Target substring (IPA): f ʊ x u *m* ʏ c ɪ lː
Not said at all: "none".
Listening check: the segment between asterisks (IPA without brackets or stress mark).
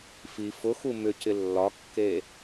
m